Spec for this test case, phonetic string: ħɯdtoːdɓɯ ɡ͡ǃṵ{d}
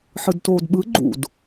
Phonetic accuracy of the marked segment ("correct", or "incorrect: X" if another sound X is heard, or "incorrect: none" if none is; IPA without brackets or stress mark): correct